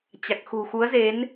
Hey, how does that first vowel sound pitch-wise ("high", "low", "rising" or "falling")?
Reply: low